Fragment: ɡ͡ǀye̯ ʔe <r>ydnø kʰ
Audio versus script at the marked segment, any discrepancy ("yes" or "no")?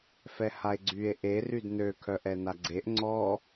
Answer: no